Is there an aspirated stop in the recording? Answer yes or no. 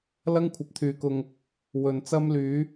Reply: yes